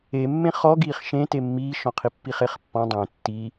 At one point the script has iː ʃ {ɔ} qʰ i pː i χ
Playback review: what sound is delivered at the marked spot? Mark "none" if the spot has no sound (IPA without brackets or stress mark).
ɔ̃